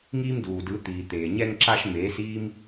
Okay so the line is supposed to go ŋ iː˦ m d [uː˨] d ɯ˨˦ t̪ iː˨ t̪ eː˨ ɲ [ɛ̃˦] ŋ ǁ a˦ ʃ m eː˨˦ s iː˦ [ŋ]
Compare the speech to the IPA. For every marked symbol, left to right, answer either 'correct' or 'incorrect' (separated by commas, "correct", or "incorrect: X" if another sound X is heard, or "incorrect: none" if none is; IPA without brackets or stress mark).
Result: correct, incorrect: ɛ˦, incorrect: m